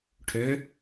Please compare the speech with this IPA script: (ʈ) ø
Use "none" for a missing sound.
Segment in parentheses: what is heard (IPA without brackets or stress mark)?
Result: ʈʰ